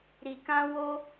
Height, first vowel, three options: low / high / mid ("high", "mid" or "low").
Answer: high